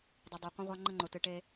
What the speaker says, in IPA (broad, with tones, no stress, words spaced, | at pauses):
dˤɨ˨dˤo˨qʷə̃˦ʁʷa˦ ŋ͡ǃə˦ŋ͡ǃʊ˨tɨ˨ʈe˦